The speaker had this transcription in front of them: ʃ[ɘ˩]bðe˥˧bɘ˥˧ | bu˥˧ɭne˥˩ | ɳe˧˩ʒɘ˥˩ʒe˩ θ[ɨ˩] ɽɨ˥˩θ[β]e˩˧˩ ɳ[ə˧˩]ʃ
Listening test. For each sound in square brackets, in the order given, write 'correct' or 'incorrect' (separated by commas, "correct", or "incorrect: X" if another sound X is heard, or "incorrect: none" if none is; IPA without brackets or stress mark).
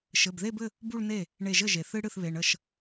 incorrect: ɘ˩˧˩, incorrect: ɨ˧, correct, correct